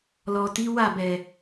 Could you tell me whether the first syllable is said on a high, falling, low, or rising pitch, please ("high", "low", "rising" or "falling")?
low